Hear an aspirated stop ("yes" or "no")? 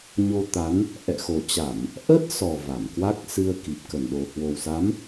no